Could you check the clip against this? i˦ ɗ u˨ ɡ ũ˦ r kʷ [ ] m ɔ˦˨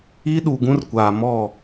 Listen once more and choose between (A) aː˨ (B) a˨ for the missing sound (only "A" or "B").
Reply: A